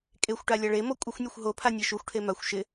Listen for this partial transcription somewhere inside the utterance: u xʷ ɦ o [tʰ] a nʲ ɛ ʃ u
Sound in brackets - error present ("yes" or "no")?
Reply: yes